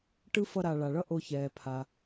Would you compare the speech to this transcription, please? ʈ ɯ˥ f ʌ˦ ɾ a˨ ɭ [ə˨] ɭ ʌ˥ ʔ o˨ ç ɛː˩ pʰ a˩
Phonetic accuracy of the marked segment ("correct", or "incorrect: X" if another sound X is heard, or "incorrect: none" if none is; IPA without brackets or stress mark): incorrect: a˨